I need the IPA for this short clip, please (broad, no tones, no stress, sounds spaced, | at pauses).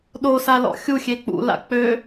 ɗ o s a l ɔ̰ xʲ u xʲ e k͡p ṵ l a̰ k͡p ø